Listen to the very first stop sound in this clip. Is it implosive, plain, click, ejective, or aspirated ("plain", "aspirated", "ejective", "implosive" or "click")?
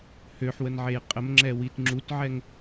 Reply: ejective